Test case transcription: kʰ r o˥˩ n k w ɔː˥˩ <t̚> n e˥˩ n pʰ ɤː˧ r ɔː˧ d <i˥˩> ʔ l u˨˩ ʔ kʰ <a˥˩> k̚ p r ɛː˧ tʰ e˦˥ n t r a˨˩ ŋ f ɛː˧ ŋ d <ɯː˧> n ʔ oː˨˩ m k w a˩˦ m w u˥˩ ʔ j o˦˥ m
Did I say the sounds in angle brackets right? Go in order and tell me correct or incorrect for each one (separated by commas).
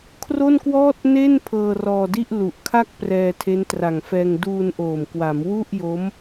correct, correct, correct, incorrect